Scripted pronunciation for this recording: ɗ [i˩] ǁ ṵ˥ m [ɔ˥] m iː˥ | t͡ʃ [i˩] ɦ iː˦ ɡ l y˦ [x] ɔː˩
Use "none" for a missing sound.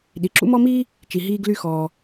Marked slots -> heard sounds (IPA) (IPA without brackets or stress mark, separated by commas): i˩, ɔ˥, i˩, x